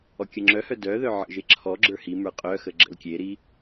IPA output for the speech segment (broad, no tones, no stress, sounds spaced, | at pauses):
ɔ kʲ ə ŋ͡ǁ œ h œ d œ ð œ ʕ ə̰ ʒ e ǁʰ ɔ ɡ͡ǁ ə˞ h i m ə˞ qʼ œ x ə ɡ͡ǁ ə̰ l kʲ e ɾ i